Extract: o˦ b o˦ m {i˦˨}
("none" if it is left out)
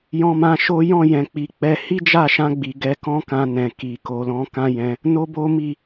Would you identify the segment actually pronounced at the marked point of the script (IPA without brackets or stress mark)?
i˦˨